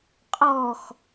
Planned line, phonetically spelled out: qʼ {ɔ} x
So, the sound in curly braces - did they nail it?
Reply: yes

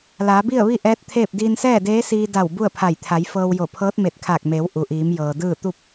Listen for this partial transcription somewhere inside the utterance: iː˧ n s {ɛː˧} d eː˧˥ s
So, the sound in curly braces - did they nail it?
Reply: no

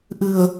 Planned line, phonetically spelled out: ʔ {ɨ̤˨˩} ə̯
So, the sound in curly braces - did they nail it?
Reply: yes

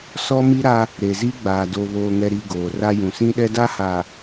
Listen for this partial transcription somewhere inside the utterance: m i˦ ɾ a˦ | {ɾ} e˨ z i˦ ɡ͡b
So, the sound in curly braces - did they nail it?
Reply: yes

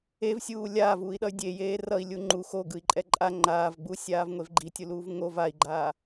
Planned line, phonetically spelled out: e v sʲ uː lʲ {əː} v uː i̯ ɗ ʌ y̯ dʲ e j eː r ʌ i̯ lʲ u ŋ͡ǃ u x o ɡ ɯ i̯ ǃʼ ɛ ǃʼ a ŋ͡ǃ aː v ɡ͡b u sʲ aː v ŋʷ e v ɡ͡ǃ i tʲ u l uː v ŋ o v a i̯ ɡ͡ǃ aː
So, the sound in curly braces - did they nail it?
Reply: no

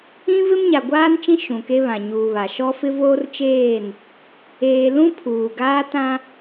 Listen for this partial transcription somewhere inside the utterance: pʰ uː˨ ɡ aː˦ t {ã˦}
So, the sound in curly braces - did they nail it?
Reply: yes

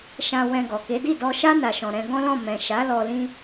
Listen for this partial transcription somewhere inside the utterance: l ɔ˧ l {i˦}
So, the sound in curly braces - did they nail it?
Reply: no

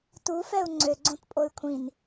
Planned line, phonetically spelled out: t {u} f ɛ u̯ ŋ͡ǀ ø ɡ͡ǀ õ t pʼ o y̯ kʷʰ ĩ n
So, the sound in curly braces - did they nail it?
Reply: yes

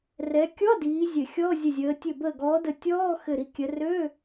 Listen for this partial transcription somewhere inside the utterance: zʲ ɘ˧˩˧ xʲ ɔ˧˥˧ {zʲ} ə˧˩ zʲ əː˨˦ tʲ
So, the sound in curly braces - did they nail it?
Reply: yes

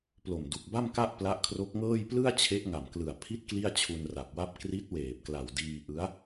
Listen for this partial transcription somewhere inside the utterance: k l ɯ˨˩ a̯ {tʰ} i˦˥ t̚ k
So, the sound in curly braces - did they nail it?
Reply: no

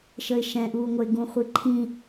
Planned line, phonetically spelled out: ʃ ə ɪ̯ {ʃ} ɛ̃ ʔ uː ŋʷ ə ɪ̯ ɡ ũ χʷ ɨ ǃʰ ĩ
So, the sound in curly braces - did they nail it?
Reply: yes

